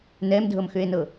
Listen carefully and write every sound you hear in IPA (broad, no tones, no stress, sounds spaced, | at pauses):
n ɛ m dʱ ɤ m x ʏ e̯ n ɤ